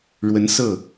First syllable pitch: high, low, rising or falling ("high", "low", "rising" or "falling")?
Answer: rising